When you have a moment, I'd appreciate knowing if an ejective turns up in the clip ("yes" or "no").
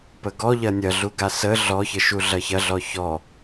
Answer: no